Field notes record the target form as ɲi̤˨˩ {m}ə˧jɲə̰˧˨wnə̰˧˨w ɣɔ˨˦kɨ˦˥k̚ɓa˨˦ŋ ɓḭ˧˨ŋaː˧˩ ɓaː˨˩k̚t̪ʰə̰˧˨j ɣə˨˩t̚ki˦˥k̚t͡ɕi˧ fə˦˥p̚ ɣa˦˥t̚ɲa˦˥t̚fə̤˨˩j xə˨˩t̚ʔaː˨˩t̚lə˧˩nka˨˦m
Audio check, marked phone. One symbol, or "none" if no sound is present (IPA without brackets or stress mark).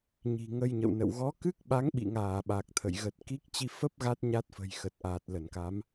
ŋ